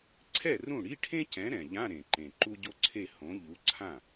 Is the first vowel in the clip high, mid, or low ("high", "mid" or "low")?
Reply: mid